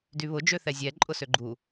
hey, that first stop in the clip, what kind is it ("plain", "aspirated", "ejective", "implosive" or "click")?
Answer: plain